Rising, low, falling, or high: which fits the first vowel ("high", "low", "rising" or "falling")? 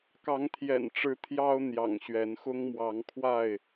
rising